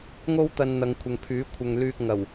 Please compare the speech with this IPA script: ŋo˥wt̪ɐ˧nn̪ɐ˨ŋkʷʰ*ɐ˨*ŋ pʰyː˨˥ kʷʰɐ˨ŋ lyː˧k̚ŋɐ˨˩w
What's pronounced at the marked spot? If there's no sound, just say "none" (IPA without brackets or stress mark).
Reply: ɐ˨